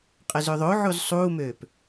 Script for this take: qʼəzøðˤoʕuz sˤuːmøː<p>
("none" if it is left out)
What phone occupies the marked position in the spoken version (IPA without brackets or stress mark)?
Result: p